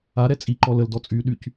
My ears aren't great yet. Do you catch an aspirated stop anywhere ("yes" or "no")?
no